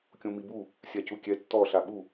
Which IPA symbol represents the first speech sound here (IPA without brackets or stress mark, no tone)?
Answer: kʲ